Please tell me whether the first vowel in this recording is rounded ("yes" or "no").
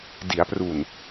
no